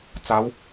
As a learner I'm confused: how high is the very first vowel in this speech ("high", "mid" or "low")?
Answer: low